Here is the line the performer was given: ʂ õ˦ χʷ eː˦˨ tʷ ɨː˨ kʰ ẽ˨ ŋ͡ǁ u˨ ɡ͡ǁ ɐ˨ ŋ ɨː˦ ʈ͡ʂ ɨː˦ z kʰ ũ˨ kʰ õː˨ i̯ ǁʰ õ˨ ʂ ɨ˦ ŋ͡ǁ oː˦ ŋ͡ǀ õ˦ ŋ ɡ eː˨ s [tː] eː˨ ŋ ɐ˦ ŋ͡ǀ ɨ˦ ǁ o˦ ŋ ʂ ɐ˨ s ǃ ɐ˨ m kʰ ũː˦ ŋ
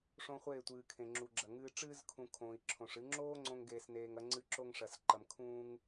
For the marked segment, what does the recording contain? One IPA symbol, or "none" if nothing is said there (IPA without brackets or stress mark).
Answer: n